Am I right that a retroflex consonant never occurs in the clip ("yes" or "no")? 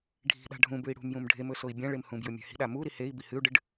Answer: no